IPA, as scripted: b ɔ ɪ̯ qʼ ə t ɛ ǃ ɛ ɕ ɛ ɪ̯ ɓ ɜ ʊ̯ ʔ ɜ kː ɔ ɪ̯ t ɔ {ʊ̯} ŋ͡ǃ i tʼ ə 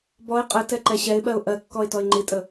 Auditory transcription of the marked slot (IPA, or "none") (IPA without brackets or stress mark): ɪ̯